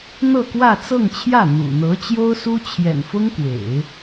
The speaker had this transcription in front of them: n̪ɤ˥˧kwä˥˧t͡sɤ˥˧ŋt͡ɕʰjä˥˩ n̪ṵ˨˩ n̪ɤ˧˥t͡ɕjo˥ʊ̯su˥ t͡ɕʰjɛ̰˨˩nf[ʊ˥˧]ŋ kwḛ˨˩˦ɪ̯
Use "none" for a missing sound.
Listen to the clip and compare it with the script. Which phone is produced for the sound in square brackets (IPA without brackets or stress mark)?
ʊ˥